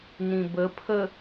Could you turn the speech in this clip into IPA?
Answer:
n ĩ b ə pʰ ə

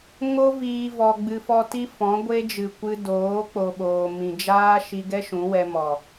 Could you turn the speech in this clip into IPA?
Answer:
ŋ o˦ v iː˧ v ɔ˧ ɡ͡b ɨ˧ f ɔ˦ t i˦ f ɔ̃˨˦ ɡʷ e˦ d͡ʒ ɨ˨ kʷ ɨ˧ d oː˨˦ k͡p o˦ ɓ oː˧ m ĩ˧ d͡ʒ aː˦ ʃ i˧ ɡ ɛ˦ ʃ ũ˨˦ w ɛ˧ m ɔ˨

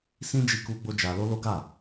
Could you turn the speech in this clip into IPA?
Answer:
s ĩ˦ d͡ʒ i˧ k u˧ ɡ͡b o˧ d͡ʒ a˧ l o˦ l o˦ ɡ a˦˨

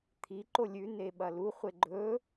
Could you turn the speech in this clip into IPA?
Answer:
t̪ʰ i ǃ o lʲ ʉ n e ɓ ɐ l u χʷ e ɡ͡ǃ ɵ

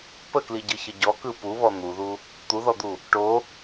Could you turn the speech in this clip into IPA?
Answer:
p ə k l i ɟ ɯ ç ə ɟ ɔ k ɯ p u β ɔ n̪ u ð u | t̪ u ð ɔ d̪ u | ʈ o

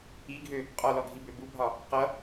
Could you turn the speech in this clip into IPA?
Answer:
i ɡʱ ø | qʼ ɒ l ɔ ɡʱ i b ø b u bʱ ɒ | q ʌ

